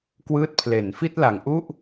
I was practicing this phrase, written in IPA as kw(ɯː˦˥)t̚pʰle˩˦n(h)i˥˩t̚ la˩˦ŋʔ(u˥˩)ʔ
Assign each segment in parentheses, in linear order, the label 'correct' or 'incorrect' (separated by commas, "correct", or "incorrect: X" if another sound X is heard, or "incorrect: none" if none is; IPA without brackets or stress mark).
correct, incorrect: f, correct